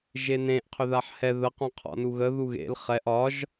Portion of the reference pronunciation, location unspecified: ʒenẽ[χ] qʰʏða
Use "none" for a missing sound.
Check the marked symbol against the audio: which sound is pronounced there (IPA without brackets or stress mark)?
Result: ʔ